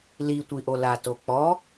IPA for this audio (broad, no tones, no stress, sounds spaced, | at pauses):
l i tʷ i ʔ o l a t o k͡p ɔ